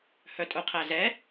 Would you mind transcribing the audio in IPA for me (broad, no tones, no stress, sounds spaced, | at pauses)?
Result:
h œ tʼ ʊ qʰ æ z ɛ